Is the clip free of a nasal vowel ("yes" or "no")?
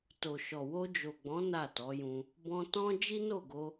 no